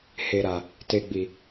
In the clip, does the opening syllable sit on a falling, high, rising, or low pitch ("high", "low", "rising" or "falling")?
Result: low